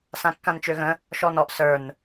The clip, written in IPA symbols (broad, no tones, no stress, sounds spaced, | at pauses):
s ã kː ã n t͡ʃ ø ɣ ə̃ | ʃ ɔ n ɔ ʔ s ə˞ n